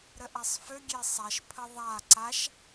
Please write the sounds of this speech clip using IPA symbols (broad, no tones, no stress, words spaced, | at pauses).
ɾəʔasˤfø ɡʲesˤæʃ pʰəðˤa ǀaʃ